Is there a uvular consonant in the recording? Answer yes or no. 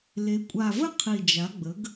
yes